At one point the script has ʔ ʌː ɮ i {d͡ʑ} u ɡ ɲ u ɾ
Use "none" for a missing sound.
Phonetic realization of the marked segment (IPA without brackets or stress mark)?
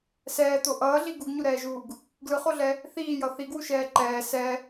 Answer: ɡ